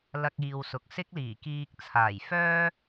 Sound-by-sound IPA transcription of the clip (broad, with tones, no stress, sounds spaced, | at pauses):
l ɐ˧ k̚ iː˨ w s ʊ˨ k̚ s ɪ˥ k̚ l iː˨˩ k iː˧ k̚ t͡sʰ aː˨˩ j f œː˥